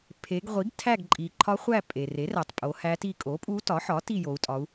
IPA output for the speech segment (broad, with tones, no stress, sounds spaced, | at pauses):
pʰ e˩˧ ɡ ʁʷ i˩˥ ɡ tʰ æ˦˨ ɡ ǃʼ i˩ ǃʰ ɒ˧˥ χʷ æ˦˨ pʼ e˩ r e˩˥ r æ˩ tˤ pʼ o˩˧ h æ˧˥ t i˦˨ kʼ o˩˥ pʼ u˧˥ t ɒ˩˥ ħ ɒ˩˥ t i˦˨ j o˩˧ u̯ tʼ ɒ˩˧ u̯